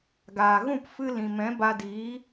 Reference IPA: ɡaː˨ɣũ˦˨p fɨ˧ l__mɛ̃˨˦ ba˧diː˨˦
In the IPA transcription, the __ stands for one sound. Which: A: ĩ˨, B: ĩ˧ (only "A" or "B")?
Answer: A